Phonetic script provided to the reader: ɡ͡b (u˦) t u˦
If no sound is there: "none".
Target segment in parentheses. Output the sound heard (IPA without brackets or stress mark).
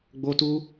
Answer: o˦